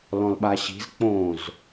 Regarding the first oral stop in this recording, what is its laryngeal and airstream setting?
implosive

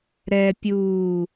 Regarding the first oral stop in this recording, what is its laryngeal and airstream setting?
plain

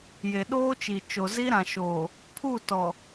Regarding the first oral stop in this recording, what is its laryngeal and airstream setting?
implosive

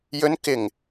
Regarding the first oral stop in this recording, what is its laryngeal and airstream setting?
plain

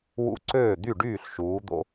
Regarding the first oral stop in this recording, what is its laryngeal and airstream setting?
click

